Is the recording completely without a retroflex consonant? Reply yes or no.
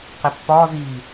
yes